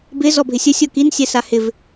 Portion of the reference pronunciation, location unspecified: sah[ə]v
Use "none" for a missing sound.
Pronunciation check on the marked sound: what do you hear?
ɪ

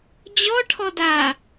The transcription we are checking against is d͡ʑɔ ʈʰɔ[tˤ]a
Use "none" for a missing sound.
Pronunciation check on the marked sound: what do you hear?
d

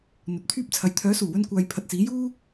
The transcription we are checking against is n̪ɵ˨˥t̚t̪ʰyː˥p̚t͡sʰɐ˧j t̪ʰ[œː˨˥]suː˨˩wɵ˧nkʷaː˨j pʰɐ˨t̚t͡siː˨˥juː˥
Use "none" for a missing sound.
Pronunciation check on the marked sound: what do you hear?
œː˨˥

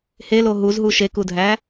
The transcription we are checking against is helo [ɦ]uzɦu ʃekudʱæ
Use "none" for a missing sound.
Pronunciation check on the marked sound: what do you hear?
ɦ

